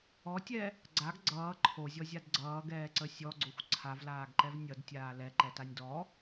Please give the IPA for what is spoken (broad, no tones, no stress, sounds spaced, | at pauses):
ɔ tʲ ɛ | ɡ͡ǀ a ɡ ɡ͡ǀ ʌː ǃʰ o zʲ ɔ zʲ a d ɡ͡ǀ ʌː ɡ ɛː ǀ ə sʲ ɔ ɡ͡ǀ o xʷ ǀʰ a v l aː ɡ ǃ ɛ v nʲ ʌ d tʲ aː l ɛ ǃ ɛ t a nʲ d ɔ